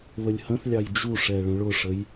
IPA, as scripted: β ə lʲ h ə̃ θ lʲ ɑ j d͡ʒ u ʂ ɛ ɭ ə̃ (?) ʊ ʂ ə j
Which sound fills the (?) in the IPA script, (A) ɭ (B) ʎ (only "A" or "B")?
A